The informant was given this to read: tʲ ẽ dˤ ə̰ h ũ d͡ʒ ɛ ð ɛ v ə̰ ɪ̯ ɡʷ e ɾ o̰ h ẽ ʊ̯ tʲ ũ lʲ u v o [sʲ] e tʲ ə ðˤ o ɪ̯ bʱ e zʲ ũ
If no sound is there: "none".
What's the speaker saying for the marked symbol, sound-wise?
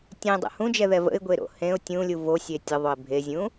sʲ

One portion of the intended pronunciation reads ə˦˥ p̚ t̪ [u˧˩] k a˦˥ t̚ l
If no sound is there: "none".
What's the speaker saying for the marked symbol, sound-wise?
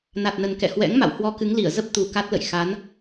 u˨˩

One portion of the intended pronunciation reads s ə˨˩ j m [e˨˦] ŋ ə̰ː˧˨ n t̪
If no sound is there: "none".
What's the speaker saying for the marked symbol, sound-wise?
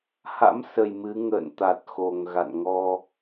ɨ˨˦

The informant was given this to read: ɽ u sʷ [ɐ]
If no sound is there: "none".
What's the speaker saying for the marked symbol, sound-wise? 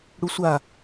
a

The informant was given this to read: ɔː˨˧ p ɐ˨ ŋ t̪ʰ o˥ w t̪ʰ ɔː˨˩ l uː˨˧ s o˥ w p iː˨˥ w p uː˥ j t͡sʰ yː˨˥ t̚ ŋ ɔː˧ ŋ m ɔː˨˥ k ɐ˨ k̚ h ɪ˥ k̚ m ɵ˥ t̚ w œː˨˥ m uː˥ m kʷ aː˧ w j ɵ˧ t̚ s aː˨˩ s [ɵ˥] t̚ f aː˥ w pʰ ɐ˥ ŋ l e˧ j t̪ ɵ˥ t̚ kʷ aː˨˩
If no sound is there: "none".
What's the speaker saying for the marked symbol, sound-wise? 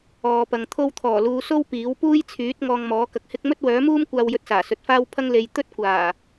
ɵ˨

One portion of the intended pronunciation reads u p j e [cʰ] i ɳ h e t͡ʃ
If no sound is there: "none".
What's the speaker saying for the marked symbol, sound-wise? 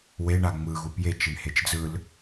t͡ʃ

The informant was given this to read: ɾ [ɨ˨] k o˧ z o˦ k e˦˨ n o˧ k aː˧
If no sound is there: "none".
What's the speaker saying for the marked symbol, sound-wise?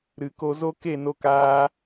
ɨ˨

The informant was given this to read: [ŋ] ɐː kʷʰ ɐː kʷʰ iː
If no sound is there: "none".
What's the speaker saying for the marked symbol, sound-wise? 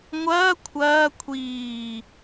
ŋʷ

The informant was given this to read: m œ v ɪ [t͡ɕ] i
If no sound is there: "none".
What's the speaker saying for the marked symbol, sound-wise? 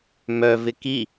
k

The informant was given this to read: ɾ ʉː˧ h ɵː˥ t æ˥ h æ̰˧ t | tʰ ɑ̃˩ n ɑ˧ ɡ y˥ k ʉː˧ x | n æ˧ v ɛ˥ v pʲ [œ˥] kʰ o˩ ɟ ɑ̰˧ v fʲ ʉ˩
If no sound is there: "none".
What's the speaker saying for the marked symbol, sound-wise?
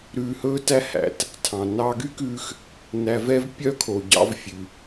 œ˥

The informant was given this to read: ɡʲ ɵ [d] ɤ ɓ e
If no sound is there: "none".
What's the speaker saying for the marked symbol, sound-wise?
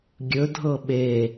dʱ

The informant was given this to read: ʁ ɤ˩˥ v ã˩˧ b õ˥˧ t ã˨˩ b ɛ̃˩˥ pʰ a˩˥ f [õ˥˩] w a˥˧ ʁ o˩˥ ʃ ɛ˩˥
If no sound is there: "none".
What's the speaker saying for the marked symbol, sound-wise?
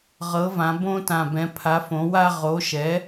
õ˩˥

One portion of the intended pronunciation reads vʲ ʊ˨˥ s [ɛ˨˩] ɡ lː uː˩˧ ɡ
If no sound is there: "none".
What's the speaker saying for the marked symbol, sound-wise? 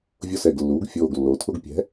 ɛ˨˩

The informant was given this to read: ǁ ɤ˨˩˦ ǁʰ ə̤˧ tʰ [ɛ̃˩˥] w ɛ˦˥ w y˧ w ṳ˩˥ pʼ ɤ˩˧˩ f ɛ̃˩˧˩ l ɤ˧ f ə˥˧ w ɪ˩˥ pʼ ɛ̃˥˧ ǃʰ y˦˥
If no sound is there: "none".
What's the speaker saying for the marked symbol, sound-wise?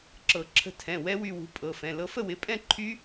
ɛ̃˩˧˩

